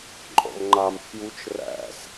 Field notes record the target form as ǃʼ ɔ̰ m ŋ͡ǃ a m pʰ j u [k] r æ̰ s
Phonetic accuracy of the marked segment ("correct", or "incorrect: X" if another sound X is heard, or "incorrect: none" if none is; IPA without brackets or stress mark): incorrect: t͡ʃ